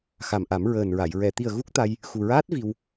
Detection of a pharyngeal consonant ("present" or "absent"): absent